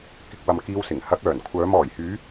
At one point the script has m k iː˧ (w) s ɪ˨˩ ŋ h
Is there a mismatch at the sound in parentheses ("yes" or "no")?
no